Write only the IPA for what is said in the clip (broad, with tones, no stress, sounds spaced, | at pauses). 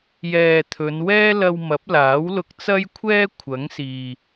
j ɛː˨ t̪ʰ ɵ˨˧ n w ɛː˥ l ɐ˧ w m ɐ˨˥ p̚ l aː˨˥ w l ʊ˧ k̚ t͡s ɐ˥ j kʷʰ ɛː˥ kʷʰ ɐ˨˥ ŋ s iː˨